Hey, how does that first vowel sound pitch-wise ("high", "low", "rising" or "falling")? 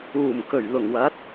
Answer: low